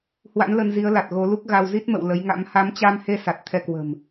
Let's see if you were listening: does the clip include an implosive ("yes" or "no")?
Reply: no